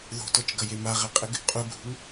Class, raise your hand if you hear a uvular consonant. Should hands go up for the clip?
yes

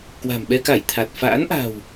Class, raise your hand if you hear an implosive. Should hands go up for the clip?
yes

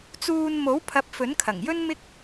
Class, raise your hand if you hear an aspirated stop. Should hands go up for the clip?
yes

